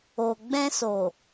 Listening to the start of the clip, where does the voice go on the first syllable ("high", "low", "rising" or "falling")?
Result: low